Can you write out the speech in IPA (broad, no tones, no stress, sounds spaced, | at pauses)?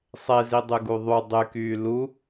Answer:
sˤ e z i dˤ y ɡ u ðˤ u dˤ y k yː l u